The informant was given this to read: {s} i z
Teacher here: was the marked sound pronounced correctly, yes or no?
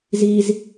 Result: no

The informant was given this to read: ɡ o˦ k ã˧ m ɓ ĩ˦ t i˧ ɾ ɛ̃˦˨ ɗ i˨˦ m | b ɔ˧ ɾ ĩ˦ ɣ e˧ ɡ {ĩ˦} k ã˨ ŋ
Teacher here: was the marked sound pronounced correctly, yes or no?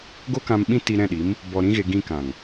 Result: no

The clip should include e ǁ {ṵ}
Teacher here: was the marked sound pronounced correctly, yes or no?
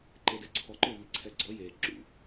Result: yes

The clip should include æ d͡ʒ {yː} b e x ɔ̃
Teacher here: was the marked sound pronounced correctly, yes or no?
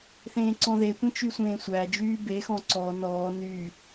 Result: yes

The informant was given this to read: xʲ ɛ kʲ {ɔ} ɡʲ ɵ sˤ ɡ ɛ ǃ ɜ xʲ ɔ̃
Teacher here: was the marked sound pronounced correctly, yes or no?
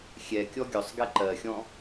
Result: yes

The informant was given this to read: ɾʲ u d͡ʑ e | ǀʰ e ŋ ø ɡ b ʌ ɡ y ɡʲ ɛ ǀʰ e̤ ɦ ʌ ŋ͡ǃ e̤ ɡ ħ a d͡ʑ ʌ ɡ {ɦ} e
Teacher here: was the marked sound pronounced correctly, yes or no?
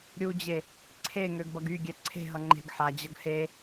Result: no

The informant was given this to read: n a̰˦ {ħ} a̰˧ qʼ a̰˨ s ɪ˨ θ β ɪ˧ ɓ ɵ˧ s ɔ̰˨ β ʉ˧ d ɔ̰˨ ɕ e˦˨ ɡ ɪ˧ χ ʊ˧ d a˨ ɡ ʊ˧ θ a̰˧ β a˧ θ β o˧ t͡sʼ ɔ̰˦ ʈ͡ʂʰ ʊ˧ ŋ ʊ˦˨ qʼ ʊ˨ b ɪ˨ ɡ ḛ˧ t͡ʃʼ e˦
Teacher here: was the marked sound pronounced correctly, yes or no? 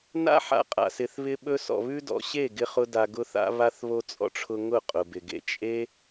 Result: yes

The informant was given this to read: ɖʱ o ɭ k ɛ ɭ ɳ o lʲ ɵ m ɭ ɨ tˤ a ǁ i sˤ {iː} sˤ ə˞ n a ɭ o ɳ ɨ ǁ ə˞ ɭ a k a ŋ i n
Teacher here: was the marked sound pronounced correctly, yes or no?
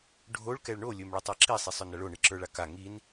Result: no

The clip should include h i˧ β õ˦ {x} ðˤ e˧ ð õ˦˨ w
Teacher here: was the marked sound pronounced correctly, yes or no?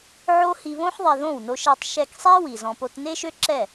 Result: no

